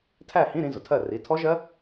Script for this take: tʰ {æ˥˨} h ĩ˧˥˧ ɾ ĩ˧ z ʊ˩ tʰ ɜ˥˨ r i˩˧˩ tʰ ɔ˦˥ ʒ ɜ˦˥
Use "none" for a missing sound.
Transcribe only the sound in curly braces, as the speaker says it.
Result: æ˥˨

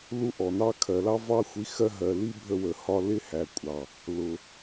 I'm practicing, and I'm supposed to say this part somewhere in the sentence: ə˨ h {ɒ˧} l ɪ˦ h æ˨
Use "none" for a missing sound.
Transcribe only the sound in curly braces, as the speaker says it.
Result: ɒ˧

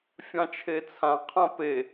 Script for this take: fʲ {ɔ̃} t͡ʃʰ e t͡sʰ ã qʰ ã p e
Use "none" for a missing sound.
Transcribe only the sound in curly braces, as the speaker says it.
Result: ɑ̃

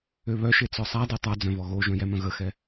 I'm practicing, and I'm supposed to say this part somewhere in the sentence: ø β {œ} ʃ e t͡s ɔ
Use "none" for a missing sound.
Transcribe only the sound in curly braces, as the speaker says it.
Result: œ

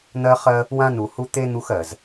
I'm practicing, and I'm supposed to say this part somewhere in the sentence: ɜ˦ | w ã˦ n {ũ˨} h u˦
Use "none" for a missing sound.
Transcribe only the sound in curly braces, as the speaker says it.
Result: u˨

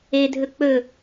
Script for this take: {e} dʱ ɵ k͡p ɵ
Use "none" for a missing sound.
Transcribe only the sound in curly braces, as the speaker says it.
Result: e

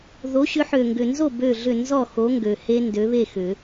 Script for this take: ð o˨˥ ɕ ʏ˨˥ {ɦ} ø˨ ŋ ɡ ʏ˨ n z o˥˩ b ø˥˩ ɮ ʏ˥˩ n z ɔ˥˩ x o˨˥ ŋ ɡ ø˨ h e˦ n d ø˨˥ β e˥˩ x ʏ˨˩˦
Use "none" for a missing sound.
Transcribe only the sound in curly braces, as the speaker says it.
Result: ħ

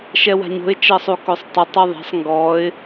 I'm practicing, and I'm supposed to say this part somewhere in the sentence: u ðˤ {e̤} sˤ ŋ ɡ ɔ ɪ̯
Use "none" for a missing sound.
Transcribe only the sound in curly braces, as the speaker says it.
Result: e̤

